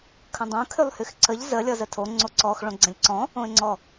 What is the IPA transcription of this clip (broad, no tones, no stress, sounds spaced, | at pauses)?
kʰ ə̃ dˤ õ kʰ y lˠ h y x ǀ ə ʎ z ə lʲ ɔ z ə tʰ o ŋ͡ǀ o ǀ ɔ x ɭ õ ɡ͡ǀ ə̃ lʲ ǀ ɔ̃ | õ ɪ̯ ŋ͡ǀ ɔ